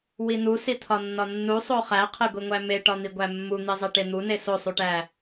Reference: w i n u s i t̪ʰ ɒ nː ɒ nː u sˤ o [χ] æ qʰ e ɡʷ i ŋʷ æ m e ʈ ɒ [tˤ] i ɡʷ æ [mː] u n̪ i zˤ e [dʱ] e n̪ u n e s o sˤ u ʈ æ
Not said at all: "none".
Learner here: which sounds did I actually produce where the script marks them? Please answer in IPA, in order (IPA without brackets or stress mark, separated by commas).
χ, n̪, mː, ʈ